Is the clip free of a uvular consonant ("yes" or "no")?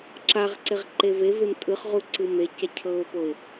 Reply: no